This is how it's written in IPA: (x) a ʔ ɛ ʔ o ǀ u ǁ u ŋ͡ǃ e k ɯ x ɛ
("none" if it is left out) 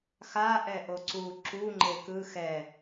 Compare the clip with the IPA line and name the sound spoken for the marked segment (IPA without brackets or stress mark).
x